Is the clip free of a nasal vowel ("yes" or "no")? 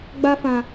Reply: no